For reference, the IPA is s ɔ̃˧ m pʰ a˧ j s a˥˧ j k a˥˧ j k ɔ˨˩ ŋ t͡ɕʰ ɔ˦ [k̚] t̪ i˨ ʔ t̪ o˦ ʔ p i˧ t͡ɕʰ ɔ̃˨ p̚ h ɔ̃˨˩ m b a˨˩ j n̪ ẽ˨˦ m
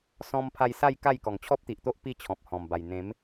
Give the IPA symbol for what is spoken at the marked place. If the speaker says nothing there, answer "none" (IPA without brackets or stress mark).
p̚